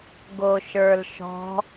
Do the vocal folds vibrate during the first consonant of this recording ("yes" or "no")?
yes